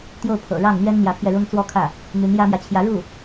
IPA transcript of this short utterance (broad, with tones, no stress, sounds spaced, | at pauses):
t̪ j o˥˩ ʊ̯ pʰ ɤ̰˨˩ ɻ ɑ˥˩ ŋ n̪ ɥ ɛ˥ n n̪ j ä˧˥ pʰ j ɛ˧ ɻ ʊ˥ ŋ t͡s w ɔ˥˧ kʰ ä˥˩ | n̪ y˧˥ n j ä˥ m j ä˨ t͡ɕʰ j ä˧˥ ɻ u˥˩